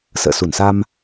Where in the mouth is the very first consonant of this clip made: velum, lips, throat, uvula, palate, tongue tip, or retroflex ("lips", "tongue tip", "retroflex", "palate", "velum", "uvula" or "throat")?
tongue tip